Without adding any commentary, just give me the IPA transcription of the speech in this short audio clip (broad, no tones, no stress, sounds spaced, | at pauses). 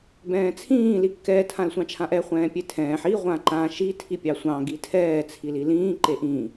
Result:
b ɛ̃ː t͡sʰ ĩː l i kː ɛː tʰ ã l sʷ ɑ̃ t͡ʃʰ ã ʔ ɛ χʷ ɛ̃ː pʲ e tʰ ɛ̃ː ħ i ʁʷ ã ǃ ã ʃ i tʰ i pʲ ɑ sʷ ɑ̃ ɡ i tʰ ɛː t͡sʰ i l i l ĩː ǃ e ʔ ĩ